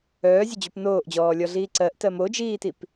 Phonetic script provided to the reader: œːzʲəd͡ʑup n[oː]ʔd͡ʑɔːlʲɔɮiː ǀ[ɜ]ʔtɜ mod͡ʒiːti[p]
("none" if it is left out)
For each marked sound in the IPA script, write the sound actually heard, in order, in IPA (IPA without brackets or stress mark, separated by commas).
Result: oː, ɜ, p